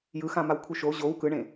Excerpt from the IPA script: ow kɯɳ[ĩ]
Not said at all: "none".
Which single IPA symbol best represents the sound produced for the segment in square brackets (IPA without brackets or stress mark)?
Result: ẽ